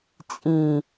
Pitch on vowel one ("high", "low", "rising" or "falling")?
low